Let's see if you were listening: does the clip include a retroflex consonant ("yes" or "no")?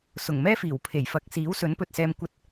no